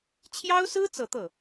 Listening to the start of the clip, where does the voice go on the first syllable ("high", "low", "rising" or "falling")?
high